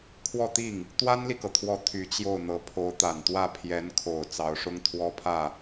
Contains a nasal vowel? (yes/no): no